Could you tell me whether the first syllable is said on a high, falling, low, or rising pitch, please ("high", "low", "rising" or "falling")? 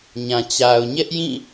low